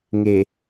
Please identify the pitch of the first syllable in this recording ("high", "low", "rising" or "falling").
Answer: low